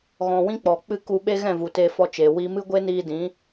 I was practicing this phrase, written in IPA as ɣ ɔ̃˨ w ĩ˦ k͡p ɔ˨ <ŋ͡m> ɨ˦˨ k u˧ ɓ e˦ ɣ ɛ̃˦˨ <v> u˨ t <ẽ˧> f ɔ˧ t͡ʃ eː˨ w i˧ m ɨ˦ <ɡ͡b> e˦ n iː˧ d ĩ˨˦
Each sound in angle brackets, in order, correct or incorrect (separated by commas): incorrect, correct, incorrect, incorrect